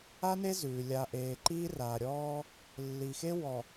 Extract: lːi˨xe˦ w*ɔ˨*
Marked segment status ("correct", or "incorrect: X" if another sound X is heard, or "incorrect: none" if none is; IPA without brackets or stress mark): correct